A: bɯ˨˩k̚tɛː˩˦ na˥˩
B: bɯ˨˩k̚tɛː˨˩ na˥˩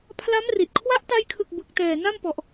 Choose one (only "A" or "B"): B